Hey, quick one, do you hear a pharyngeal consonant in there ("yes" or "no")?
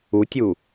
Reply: no